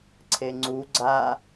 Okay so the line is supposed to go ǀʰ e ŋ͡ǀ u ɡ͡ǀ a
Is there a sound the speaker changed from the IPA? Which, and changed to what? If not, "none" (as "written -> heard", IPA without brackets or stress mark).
none